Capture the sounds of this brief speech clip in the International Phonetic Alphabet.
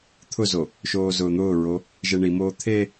t̪ʰ ʊ z o | ʃ oː z ʊː n̪ ʊː ɹ o | ʒ e ɳ i m oː t̪ʰ e

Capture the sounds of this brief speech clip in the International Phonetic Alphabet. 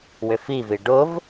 w ʏ f i v i ɖ ʊ v

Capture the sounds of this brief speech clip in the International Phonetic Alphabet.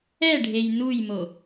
ɛ ɖʱ e j n u j m o

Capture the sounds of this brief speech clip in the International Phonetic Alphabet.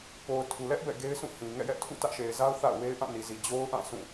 p o˨ ʊ̯ tʰ u˨ l ɛ˦ ʔ b ɛ̰˦˨ ɡ e˦ ɪ̯ sʰ ũ˦˨ h ĩ˨ ŋ ɛ̰˦˨ j ɛ˦ ʔ tʰ ṵ˦˨ t ä˦ ʔ ʃ e˨ ɪ̯ z a˦ ʊ̯ θ a̰˦˨ ʊ̯ w e˦ ɪ̯ ʔ ã˦˨ n i˨ z i˨ d͡ʑ o˦ ʊ̯ ʔ ã˦˨ sʰ ũ˦˨

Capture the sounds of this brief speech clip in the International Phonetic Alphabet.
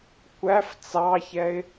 kʷ æ f t͡s ɑ ç ɛ ɪ̯

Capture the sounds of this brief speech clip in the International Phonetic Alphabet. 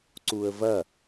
ǀ u ə̯ v ɐ

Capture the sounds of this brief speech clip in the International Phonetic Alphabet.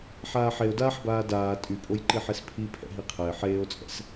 ħ aː ħ e o̯ d aː ħ b aː d aː tʼ y pʼ o j ǃ i ħ e s pʰ i pʰ ɛ̰ ɦ i qʰ ɛ e̯ ħ eː o̯ t͡sʼ ɛ̰ s

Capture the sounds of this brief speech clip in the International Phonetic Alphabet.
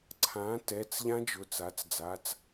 ǀʰ ã˩˥ t ɛ˩˧˩ t͡s ʎ ã˦˥ d͡ʒ ʊː˩˧˩ t͡s a˩˥ t͡s d͡z a˩˧˩ t͡s

